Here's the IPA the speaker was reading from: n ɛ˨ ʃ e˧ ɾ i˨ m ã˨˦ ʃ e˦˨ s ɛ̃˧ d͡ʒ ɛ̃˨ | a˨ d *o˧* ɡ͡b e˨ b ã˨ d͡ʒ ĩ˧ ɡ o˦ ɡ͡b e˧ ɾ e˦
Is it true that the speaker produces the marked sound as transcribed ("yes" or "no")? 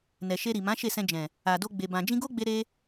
yes